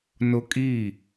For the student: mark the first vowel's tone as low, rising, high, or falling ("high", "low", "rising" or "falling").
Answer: high